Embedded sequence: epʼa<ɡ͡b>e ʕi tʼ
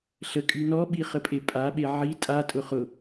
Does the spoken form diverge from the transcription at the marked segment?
yes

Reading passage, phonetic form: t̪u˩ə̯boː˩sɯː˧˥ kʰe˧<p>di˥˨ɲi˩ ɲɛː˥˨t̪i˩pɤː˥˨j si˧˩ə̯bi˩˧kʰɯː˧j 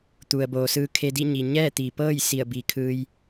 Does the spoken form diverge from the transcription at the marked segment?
yes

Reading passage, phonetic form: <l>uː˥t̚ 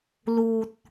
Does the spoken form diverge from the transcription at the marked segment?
no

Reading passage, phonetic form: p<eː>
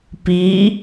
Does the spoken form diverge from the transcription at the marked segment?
yes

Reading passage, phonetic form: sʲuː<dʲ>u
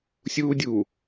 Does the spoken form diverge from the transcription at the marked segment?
no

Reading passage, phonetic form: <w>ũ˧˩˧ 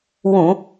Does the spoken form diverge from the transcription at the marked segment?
no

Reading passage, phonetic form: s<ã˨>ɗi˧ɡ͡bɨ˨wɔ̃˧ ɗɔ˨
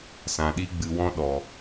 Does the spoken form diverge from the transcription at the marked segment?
no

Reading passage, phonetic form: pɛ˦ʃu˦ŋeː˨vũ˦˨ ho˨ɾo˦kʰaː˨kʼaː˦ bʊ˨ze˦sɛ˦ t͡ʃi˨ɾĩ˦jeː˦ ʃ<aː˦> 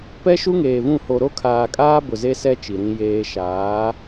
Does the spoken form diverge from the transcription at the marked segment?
yes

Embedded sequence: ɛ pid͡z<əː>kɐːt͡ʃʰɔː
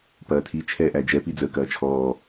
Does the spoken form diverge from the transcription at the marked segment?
no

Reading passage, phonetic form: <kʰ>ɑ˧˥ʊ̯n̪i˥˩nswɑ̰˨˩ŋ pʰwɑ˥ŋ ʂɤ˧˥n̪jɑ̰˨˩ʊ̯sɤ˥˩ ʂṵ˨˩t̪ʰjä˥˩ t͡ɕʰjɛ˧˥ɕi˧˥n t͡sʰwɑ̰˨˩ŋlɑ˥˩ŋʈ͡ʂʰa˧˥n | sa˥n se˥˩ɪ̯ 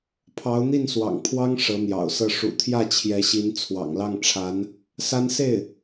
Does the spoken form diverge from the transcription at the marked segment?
yes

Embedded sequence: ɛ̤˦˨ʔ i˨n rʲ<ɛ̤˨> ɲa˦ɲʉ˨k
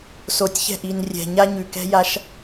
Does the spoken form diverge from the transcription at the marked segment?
no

